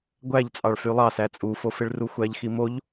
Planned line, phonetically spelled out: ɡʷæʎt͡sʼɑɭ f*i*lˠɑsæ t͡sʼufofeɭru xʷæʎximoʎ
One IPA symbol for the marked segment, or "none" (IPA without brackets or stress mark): y